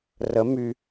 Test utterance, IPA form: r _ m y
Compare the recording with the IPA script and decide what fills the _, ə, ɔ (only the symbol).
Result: ə